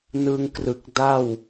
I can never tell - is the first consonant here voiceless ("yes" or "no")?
no